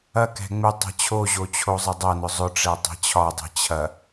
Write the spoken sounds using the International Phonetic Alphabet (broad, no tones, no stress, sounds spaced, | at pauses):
ɐ k ɛ̤ ŋ͡m ɪ tˤ ɛ̤ t͡ɕʰ o ʑ o t͡ɕʰ o zˤ ɐ dˤ ɐ n ʊ zˤ ʊ ʈ͡ʂ ɛ tˤ ɛ̤ t͡ɕʰ ɒ dˤ i̤ t͡ɕʰ ɐ